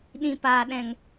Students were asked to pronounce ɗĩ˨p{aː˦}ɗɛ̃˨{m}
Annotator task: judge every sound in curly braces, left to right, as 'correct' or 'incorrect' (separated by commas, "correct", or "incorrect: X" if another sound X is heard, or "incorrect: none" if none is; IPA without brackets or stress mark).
incorrect: aː˨, incorrect: ŋ